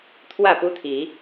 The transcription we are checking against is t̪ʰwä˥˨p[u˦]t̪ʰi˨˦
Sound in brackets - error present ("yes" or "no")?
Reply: no